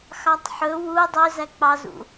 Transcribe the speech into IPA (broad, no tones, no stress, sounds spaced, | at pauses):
x ɑ tˤ ħ ɵ w u dˤ ø z æ k͡p ɑ z ṵ